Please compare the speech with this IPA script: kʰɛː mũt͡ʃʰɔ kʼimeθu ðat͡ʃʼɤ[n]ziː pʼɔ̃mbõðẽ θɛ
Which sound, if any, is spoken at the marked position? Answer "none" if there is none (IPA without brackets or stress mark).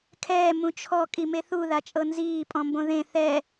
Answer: n